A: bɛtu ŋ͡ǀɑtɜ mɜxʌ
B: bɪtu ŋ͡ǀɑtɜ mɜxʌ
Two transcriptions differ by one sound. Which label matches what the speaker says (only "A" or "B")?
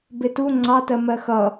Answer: B